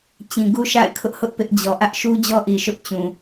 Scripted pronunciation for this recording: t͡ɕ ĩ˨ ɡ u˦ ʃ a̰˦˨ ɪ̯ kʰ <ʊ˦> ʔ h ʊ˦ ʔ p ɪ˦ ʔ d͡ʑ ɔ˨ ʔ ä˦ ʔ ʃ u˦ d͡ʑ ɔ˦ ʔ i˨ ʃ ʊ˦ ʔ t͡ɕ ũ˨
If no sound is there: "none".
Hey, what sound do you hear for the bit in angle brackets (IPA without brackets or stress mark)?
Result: ʊ˦